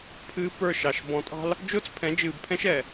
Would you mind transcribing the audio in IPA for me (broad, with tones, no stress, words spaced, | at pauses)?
pʰɨː˦pə˞˦˨ʃɑ˨ʃ bɔ̃˨tʼɑ̤˦l | d͡ʒʊː˦t͡spʰɛ̃˨˦d͡ʒɨː˨bpʰɛ̃˦ʃ ɛ˨